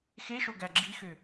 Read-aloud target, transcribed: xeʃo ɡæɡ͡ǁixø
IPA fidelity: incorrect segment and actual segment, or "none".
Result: none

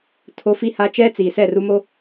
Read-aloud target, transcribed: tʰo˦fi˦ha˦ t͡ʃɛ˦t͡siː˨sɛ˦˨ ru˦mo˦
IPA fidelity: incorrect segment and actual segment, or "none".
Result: none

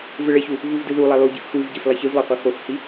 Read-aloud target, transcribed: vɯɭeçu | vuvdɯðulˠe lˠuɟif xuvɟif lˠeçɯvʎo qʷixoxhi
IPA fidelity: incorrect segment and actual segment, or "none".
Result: ʎ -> lˠ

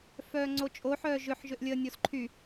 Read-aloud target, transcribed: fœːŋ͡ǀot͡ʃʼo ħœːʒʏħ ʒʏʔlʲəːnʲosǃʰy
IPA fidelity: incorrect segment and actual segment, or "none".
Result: none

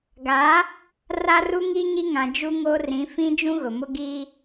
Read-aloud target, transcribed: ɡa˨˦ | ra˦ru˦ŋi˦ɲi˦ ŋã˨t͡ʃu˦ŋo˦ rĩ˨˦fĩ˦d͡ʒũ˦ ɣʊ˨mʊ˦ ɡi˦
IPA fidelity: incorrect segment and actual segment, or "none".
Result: t͡ʃ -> d͡ʒ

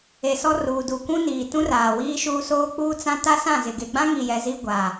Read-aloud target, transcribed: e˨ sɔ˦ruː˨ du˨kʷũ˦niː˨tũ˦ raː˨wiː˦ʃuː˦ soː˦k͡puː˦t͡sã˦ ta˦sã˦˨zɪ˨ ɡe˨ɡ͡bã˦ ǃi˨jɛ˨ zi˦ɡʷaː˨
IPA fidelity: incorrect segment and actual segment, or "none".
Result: ǃ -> ŋ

